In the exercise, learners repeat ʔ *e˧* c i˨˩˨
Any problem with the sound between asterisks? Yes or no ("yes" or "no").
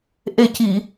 yes